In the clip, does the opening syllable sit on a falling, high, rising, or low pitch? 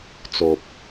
low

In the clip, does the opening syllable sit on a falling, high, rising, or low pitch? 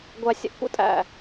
low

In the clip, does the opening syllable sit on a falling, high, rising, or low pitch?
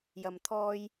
low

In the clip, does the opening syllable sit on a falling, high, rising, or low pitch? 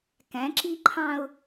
rising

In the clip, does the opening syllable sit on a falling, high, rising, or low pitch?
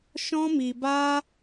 high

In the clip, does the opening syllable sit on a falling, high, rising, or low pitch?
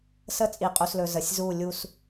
falling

